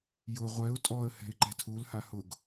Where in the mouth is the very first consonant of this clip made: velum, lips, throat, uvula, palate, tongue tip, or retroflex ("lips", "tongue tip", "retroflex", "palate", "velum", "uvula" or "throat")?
palate